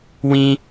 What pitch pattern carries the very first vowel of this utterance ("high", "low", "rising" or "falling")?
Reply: high